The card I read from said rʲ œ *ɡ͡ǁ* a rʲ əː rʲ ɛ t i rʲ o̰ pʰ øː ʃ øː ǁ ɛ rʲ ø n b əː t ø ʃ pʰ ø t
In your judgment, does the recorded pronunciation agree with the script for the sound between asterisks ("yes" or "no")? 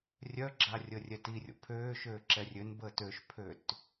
yes